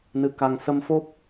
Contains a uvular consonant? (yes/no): no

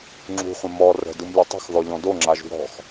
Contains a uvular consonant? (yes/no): yes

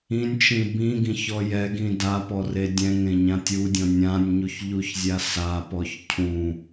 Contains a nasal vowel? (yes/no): yes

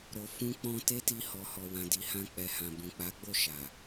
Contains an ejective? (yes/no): no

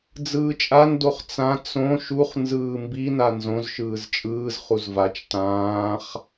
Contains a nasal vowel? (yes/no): yes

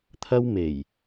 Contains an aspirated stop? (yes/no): yes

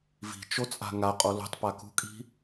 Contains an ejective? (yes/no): yes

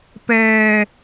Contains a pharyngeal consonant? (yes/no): no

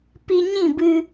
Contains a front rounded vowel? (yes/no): no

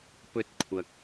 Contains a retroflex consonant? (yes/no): no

